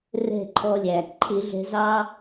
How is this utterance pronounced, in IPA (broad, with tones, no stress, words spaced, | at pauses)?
rɛ̤˥˨ǃʰɔ˦lʲæ˩ ǃʰɪ˨˩˦ɮɛ̤˨˦zɑ˦